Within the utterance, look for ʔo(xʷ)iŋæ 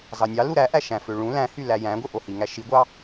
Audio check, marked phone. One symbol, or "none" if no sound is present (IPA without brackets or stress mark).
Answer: h